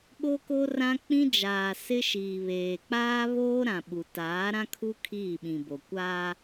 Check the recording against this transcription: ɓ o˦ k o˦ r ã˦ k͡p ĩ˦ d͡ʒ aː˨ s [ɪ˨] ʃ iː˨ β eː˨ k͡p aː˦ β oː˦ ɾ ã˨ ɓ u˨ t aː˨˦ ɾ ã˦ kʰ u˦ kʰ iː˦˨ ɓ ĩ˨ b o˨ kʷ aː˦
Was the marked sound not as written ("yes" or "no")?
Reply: yes